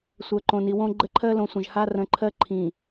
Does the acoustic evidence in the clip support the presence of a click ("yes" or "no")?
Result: yes